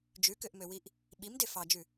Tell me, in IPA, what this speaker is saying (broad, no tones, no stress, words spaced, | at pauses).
d͡ʒʉkøʔmøwiʔ | ɓimde fɑd͡ʒʉ